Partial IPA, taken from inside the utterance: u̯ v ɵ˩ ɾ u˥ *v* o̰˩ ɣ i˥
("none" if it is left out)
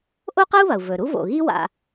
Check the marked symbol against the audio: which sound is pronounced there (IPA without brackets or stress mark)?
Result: v